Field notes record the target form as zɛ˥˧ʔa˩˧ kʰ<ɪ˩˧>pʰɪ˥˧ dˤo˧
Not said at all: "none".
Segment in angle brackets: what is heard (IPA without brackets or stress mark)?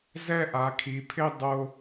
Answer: i˩˧